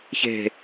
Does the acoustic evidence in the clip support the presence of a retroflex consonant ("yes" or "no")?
no